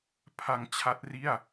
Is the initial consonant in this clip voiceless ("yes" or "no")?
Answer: yes